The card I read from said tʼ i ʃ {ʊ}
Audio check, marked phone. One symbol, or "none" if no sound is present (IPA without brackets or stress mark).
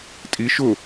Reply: ʊ